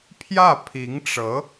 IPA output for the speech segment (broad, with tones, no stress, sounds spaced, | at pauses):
pʰ j ä˥˩ pʰ i˧˥ ŋ ʈ͡ʂ ɤ˧˥